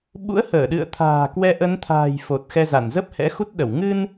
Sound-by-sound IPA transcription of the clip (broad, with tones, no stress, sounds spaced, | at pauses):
ɓ ṵ˧˥ ə̯ h əː˧˩ ɗ ɨ̰˧˨ ə̯ t̪ʰ a̤ː˨˩ k w ɛ˧ ʔ ə˨˦ n t̪ʰ a̤ː˨˩ j f o˨˩ t̚ x ɛ˧ z a˧˩ n z ə˦˥ p̚ h ɛ̰˧˥ x u˦˥ t̚ ɗ ə˧˩ w ŋ ɨ˧ n